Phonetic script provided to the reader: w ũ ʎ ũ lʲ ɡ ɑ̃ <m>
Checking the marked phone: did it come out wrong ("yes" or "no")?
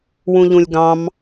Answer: no